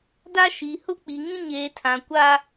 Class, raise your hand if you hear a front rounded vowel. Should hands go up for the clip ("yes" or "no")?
no